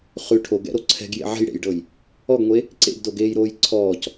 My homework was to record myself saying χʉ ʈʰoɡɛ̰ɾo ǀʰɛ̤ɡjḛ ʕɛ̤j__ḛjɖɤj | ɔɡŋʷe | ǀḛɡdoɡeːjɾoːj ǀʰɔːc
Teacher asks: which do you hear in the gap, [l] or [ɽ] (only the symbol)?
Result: ɽ